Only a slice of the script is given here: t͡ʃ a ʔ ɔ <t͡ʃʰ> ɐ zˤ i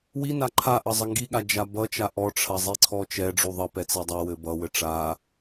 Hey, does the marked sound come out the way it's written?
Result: no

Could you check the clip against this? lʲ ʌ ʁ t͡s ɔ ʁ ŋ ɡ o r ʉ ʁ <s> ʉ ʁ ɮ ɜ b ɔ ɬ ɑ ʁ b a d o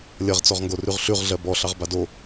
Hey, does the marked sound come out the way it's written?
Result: no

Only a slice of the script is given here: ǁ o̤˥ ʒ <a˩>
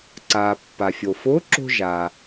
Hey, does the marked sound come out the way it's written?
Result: yes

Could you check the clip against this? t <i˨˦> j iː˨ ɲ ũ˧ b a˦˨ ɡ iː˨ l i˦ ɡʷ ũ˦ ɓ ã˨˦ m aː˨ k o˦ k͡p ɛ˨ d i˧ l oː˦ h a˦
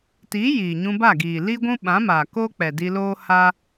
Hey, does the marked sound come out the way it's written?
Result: yes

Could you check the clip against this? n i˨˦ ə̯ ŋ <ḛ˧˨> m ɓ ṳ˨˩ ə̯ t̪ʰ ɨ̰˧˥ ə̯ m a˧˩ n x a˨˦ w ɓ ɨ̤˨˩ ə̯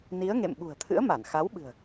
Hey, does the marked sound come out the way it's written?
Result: yes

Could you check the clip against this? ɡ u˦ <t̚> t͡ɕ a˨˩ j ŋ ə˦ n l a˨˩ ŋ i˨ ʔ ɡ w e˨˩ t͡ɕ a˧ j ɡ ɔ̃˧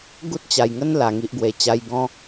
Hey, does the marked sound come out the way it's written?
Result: yes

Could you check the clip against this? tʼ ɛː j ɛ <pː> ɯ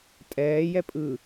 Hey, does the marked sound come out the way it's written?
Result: no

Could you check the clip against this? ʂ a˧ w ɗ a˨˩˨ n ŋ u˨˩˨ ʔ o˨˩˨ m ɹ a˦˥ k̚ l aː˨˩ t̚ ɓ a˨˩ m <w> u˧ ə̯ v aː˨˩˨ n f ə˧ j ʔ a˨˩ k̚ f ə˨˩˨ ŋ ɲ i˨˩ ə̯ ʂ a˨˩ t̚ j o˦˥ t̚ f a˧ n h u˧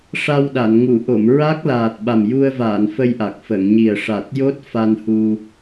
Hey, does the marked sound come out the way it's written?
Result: no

